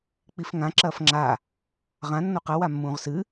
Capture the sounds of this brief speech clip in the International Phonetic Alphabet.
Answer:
k͡p i f ŋ ã ǁ ɐː f ŋ͡ǁ a | ʁ ã nː o q ɐ w a mː ũː ʁ s ɨ

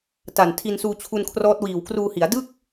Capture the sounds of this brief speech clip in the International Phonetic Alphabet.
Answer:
t a˨˩ n tʰ i˧ n s uː˧ t͡ɕʰ u˧ n kʰ r ɔː˦˥ t̚ w iː˨˩ w k r uː˧ h i˩˦ a̯ d ɯ˥˩ k̚

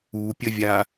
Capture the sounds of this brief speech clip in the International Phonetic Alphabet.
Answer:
u pʲ ə vʲ a

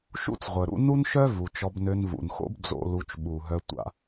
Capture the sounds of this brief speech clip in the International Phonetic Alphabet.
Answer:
ʃ ṵ˥ t͡s ʁʷ œ˩ ɾ ṵ˦ n u˥ n ʃ œ˥ v u˩ t͡ʃ ɔ˨ b n ø˨ n v ṵ˩ n x o̰˦ b d͡z o̰˨ l u˨ t͡ʃ ɓ u˩ ɦ œ˨ tʷ a̰˨

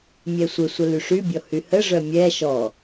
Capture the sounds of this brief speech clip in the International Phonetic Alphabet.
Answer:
mʲ ɛ sʷ ə sʷ ə l y ʂ y bʲ ɔ h y h ə ʐ œ mʲ ɛ ʃ ɔ

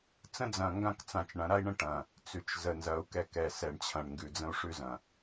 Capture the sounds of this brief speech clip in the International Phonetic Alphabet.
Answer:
t͡s ə̃˦ d͡z ɐ̃˨ ŋ ɡ ã˦ k t͡s ã˨ t͡ʃ ɳ ɐ̃˨˦ ɾ a˦ i̯ ɳ ə̃˦ ʈ ɐ̃˨ | t͡s ʉ˨ t͡ʃ z ə˨ n z ɐ˨˦ u̯ k ɛ˦˨ k ɛ˨ s ɛ˨ ɳ t͡ɕʰ ɐ̃˨ ɳ ŋ ɡ ʉ˨ d͡z ə̃˦ u̯ ʂ ʉ˦ z ɐ̃˨

